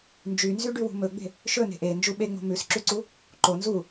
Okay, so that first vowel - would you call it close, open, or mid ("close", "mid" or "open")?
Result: close